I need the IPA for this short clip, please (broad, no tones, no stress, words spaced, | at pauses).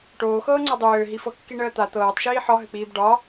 ʈoːxɤːŋ͡ǀa dˤøːɦifɤ kːiɳəːt̪a t̪ɤːtˤʃiː ħɒɦɘk͡piːb ɖɒ